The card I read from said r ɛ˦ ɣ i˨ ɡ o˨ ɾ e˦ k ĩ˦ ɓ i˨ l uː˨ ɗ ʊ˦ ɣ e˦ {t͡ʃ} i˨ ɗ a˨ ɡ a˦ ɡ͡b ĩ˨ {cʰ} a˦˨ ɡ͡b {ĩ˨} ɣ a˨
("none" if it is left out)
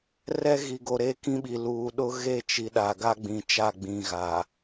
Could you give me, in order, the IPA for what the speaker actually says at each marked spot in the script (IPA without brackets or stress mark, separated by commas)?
t͡ʃ, t͡ʃ, ĩ˨